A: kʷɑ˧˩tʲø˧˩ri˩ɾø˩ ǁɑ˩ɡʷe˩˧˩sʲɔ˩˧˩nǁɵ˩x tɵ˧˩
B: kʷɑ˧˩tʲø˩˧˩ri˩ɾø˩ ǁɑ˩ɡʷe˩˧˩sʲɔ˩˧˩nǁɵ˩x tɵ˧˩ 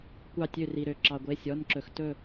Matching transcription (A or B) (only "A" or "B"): A